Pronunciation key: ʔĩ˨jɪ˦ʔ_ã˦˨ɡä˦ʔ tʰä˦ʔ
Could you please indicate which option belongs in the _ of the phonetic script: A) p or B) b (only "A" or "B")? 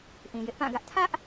A